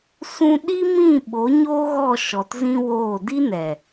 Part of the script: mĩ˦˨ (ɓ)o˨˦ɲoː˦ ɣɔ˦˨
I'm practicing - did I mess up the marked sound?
no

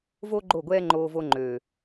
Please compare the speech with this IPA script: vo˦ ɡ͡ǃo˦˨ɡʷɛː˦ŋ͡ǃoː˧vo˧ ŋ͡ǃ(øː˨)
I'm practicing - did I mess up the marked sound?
no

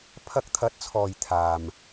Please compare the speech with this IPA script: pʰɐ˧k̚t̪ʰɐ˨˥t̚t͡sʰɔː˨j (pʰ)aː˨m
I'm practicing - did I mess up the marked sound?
yes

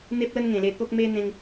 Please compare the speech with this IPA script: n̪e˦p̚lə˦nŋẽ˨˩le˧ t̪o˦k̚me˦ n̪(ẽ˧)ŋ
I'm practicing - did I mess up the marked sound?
no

